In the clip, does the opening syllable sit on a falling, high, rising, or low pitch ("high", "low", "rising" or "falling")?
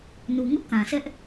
low